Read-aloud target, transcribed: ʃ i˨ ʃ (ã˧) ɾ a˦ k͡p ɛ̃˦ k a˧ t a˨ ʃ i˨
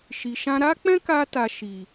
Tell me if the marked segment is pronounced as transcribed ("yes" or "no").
yes